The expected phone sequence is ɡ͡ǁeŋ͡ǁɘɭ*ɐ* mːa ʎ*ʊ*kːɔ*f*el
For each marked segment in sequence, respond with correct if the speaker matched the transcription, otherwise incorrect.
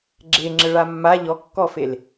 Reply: incorrect: a, incorrect: ɔ, correct

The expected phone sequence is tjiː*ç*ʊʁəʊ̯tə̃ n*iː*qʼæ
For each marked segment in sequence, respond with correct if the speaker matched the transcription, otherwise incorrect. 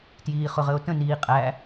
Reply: incorrect: χ, correct

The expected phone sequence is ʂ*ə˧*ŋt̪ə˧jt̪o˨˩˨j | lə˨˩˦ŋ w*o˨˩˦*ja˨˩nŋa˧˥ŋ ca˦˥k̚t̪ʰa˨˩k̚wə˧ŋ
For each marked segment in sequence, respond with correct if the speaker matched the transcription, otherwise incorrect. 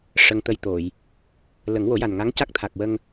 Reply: correct, correct

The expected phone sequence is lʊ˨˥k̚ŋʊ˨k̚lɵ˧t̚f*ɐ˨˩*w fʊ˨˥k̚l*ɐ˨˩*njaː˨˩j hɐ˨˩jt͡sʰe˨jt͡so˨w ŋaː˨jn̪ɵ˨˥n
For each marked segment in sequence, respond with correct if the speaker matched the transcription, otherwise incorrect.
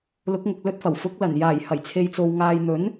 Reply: correct, correct

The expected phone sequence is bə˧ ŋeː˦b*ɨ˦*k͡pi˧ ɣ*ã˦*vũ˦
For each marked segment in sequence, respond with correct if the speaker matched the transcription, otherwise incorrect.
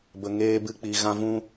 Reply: correct, correct

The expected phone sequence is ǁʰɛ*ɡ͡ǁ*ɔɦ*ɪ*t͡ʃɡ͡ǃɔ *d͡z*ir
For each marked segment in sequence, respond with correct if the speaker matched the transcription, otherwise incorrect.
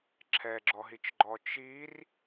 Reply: correct, incorrect: i, incorrect: t͡ʃ

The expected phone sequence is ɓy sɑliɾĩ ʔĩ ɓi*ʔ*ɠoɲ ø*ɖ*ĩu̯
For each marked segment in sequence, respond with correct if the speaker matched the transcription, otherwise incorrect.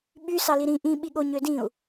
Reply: incorrect: none, incorrect: d

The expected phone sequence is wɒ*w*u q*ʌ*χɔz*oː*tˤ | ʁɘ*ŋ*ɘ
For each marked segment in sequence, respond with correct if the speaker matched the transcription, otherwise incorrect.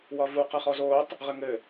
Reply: incorrect: v, correct, correct, correct

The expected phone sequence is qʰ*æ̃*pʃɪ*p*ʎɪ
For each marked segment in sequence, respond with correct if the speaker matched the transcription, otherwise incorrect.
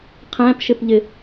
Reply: correct, correct

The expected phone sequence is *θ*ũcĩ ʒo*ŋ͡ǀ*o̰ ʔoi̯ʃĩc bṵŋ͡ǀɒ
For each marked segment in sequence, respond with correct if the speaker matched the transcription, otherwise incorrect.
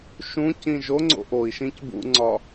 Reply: incorrect: ʃ, correct

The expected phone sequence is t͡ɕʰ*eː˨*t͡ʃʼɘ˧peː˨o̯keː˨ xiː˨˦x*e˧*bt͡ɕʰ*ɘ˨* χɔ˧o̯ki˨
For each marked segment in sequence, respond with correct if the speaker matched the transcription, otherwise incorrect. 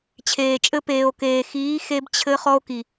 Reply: correct, correct, incorrect: ɘ˧

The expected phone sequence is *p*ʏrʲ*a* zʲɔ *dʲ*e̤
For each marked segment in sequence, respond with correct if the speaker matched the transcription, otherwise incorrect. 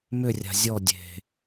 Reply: incorrect: m, incorrect: a̤, correct

